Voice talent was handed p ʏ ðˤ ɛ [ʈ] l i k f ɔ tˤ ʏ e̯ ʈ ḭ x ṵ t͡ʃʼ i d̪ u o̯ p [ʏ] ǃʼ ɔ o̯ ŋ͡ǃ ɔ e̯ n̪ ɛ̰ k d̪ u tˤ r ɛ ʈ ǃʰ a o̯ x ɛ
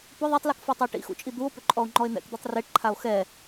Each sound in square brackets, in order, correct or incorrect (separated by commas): incorrect, correct